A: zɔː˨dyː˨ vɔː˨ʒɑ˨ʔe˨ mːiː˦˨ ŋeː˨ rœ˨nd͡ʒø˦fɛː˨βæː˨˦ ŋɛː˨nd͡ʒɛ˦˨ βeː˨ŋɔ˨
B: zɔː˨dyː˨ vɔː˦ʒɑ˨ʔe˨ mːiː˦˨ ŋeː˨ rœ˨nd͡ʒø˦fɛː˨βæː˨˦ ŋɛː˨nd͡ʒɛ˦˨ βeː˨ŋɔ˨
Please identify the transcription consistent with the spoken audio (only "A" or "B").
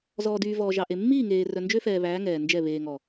A